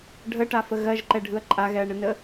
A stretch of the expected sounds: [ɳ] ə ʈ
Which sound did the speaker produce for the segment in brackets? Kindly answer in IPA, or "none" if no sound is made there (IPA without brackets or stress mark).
ɖʱ